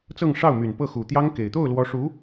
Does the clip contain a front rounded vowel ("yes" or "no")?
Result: yes